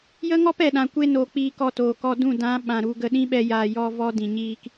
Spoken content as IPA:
j ə˦ ŋ ɔ˦ p ɛ˨ ɗ ã˨ kʷ e˧ n o˨ k͡p iː˧ k ɔ˧ t oː˨ k ɔ˧ d ũ˦˨ d ã˨˦ ɓ ã˨ ɾ u˧ ɡ ə˧ ɗ ĩ˦ ɓ ɛ˧ j aː˨ j ɔ˧ v ɔ˦ d ĩ˨ ɲ iː˦ k

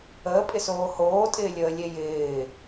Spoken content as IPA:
əː pʼ ɪ s oː h oː tʼ ɪː lʲ əː lʲ e j ɪː

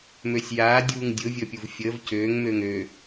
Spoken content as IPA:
m ø sʲ j aː dʲ uː ŋ dʲ ʊ vʲ əː pʲ u v fʲ əː v c øː ŋ m øː ŋ ø

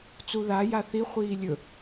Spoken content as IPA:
t͡s u ð a j a θ i χʷ iː lʲ ɵ

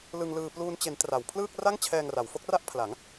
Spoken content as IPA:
l ɯ˧ ŋ l ɯː˧ p l uː˧ n t͡ɕ e˩˦ n t r a˩˦ w pʰ l ɯː˥˩ k̚ r a˥˩ ŋ t͡ɕʰ ɛː˧ ŋ r a˩˦ w f o˦˥ k̚ r a˥˩ ʔ pʰ l a˩˦ ŋ

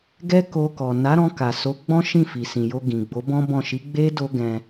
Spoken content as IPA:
ɡ ɛ˦ k o˧ k ɔ˨ n a˨˦ ɾ ɔ̃˧ k a˨ s o˨˦ ɡ͡b ɔ̃˦ ʃ ĩ˦˨ f i˨ s ĩ˨ j o˧ ɡ ĩ˨ ɡ͡b o˨˦ b ɔ̃˦ b ɔ̃˦˨ ʃ i˨˦ ɡ͡b e˦ d o˦ ɡ ɛ̃˧

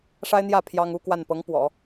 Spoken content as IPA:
ʂ a˥ ɪ̯ n̪ j ä˥˩ pʰ j ɑ˥ ŋ u˥ k w a˥˩ n p ɤ˧˥ ŋ p w ɔ̰˨˩˦

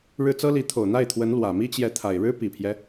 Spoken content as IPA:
ɻ ɻ̩˥˩ t͡s ɤ˥ l i˧˥ t̪ʰ o˨˩ ʊ̯ n̪ a˥˩ ɪ̯ t̪ʰ w ə˧˥ n l w ä˨˩ m i˥ t͡ɕ j ɛ˧˥ t̪ʰ a˨˩ ɪ̯ ɻ ɻ̩˥ p i˨˩ pʰ j ɛ˦

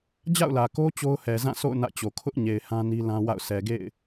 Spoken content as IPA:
d͡ʑ a̰˦˨ ʊ̯ l ä˨ k o˦ t͡ɕ o˦ ʊ̯ h ɛ˨ z ã˦˨ s o̰˦˨ ʊ̯ n ä̰˦˨ t͡ɕ o˨ kʰ ʊ˦ ʔ ɲ e˨ ɪ̯ h ã˦ n i˦ l ã˦ w a̰˦˨ ʊ̯ s ɛ˨ ɡ ḛ˦˨ ɪ̯

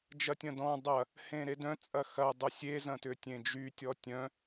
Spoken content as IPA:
d͡ʒ ɐ tʲ ɐ̃ d ɔ̃ dˤ ɐ | h ẽ ɾ e d œ̃ t͡sʼ ɐ x ɐ dˤ ʏ sʲ e z ɐ̃ t ʏ tʲ ẽ d͡ʒ y tʲ ɔ tʲ œ̃

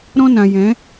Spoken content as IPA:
ɾ ɔ̃˦ n ã˨ j ɛ̃˨˦

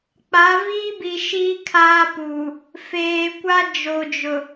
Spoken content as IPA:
k͡p a˨˦ v iː˦ b i˨ ʃ iː˦ kʰ aː˦ p u˨ | f eː˨ kʷ a˦ d͡ʒ o˨ d͡ʒ ʊ˨

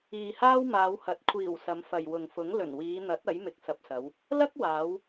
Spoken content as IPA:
iː˨ h aː˥ w m aː˨˧ w h ɐ˨˥ t̚ kʷʰ iː˨˩ w s ɐ˨˧ m f ɐ˨ j w ʊ˨ ŋ f ʊ˨˥ ŋ l ɵ˨˩ n w iː˨˧ n̪ ɐ˨˥ t̚ ɐ˨˥ j m ɪ˨ k̚ s ɐ˨ p̚ s ɐ˨˧ w | l ɐ˥ k̚ w aː˨˧ w

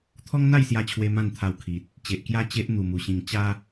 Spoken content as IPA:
t̪ʰ ɔ˦ ŋ n̪ a˥˧ j s j a˧ t͡ɕʰ w e˧ m ã˥˧ n t̪ʰ a˧ w kʰ i˨ t̚ | t͡ɕ e˨ ʔ k j a˦ t͡ɕ e˦ ʔ n̪ u˨˩ m u˨˩ ɕ ĩ˨˩ ŋ t͡ɕ a˦

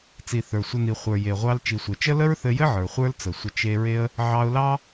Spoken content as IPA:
t͡s i˨ θ ə˞˨ sʷ ə˧ n i˨ χʷ ə˞˨ j e˨ ʁʷ ɑ˧ l t͡ʃ i˨ sʷ e˨ t͡ʃ ə˦ l ə˦ ɹ θ ɘ˧ j ɘ˦ ʕ ə˞˨ χʷ ə˞˦ l t͡s ə˨ sʷ ə˧ t͡ʃ e˧ ɹ e˧ ə̯ | ʕ ɑ˧ ʊ̯ l ɑ˦

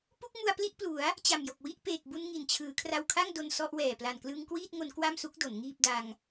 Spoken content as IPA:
p u˥˩ k̚ m u˧ a̯ p l i˥˩ ʔ p l u˩˦ a̯ | t͡ɕ a˨˩ m j o˨˩ k̚ w i˥˩ ʔ p eː˨˩ k̚ b u˧ n ŋ i˨˩ n t͡ɕʰ ɯː˩˦ kʰ r a˧ w kʰ a˥˩ ŋ d o˧ n s ɔ˥˩ ʔ w ɛː˨˩ p l a˨˩ n k l ɯ˧ ŋ k w iː˥˩ t̚ ŋ o˧ n k w a˥˩ m s u˦˥ k̚ d o˩˦ n ŋ iː˥˩ p̚ d a˧ ŋ

